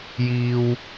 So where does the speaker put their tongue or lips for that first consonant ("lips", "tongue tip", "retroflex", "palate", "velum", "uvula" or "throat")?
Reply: palate